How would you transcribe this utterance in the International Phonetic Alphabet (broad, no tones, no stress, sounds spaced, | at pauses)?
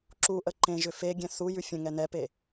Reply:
ǁ u ʔ ə ǃ ẽ ʒ ʏ f e ɡʲ ɛ̃ θ u j ʉ fʲ ə̃ ŋ ɛ n ɛ p e